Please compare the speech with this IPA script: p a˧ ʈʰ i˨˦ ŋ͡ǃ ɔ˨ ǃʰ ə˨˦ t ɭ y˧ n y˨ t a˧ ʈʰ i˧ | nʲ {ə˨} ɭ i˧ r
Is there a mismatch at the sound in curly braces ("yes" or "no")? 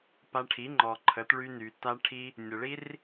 no